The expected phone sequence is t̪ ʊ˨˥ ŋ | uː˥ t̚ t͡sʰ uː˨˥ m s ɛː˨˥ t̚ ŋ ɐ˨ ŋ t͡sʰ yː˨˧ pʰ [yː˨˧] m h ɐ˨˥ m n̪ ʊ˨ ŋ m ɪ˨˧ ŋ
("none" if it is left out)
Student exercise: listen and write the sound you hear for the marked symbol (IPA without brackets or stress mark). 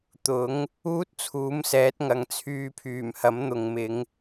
yː˨˩